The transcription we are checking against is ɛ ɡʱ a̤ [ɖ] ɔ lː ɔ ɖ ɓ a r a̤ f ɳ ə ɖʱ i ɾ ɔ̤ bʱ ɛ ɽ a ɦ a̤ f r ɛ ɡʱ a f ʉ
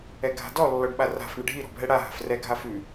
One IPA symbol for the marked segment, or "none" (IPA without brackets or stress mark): d